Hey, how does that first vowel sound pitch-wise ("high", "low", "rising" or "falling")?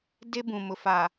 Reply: high